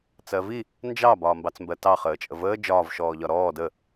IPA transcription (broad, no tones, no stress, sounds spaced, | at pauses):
t͡s ɜ v i | n d͡ʒ ɑ b ɒː m b ɑ t͡s m b ɜ t ɑ χ əː t͡ʃʼ ə v əː d͡ʒ ɒː v ʃ ɔː ʎ ɒ ɾ ɔː d ə